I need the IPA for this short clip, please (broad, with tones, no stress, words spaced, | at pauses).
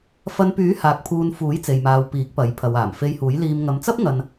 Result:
fɐ˧npyː˨˥haː˨k̚ pʰuː˧n fuː˨˥jt͡se˨jmaː˨w piː˨˥k̚pɐ˨˥j pʰɐ˨waː˨˩m fe˧jhuː˨˥j liː˧m ŋɐ˨˧mt͡sɐ˥p̚ ŋɐ˧n